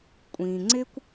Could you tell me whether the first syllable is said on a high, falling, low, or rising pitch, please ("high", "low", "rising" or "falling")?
low